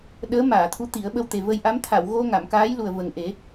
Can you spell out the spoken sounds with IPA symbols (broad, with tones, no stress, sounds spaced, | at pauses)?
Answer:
ɗ əː˧˥ m aː˨˩˨ t̪ʰ u˧˥ t̪ i˨˩˦ ə̯ ɓ ə˧ w t̪ e˨˩ v ə˧ j ʔ a˧˥ m t̪ʰ a˨˩˨ w ɣ o˧ ŋ a˨˩˨ m k aː˧˥ j l u˨˩ ə̯ v ə˨˩ ŋ ʔ e˨˩˦